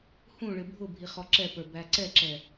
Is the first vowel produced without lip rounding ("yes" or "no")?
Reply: no